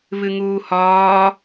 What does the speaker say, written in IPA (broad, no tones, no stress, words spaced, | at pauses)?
βɨŋuːhɒː